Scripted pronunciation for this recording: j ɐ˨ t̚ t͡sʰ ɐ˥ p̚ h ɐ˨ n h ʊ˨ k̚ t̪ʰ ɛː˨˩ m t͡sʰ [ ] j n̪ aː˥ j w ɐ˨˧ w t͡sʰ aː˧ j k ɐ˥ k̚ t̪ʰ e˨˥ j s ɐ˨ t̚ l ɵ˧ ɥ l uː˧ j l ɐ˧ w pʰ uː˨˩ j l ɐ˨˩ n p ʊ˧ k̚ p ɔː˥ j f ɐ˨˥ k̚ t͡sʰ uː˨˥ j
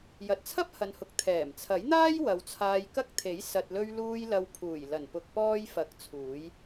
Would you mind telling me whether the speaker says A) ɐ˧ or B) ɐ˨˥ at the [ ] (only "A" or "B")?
B